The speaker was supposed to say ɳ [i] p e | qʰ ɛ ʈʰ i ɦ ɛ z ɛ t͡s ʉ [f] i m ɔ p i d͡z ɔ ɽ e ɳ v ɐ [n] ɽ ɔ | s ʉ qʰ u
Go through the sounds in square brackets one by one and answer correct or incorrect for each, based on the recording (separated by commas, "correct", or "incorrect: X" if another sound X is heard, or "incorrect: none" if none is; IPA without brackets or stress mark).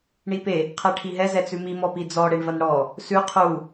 correct, incorrect: m, correct